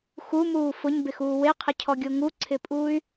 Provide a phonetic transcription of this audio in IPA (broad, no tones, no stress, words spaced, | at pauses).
xumuː fʊɲbɪxuː weqʰɪcʰɔɡʲo ŋuǀʰɪpʼuːy̯